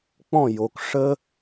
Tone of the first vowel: falling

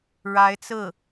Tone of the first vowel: rising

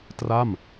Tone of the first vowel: falling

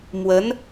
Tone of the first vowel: rising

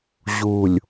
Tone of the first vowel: low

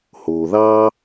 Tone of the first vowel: low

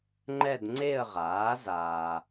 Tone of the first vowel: falling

